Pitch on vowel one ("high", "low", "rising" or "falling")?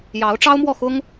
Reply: rising